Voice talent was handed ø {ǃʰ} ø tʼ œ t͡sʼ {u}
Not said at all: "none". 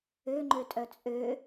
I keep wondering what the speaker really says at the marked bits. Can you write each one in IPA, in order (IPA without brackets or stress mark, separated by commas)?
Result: ŋ͡ǃ, ø